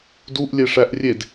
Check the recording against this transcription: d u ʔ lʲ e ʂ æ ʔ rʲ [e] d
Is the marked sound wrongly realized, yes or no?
no